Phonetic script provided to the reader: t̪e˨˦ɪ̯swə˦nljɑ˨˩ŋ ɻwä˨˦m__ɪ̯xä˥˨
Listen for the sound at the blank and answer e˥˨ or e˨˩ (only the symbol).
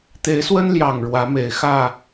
e˨˩